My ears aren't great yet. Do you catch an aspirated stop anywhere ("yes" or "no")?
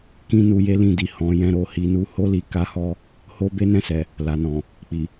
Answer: no